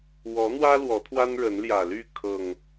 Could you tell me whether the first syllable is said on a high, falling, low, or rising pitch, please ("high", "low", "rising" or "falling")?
rising